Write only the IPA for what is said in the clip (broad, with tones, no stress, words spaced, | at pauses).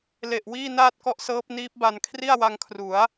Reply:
le˨˩ʔ wiː˥˩naː˥˩t̚kɔ˦˥ʔsɤː˦˥p̚ niː˦˥p̚ba˧n kʰri˥˩a̯wa˧ŋkʰru˩˦a̯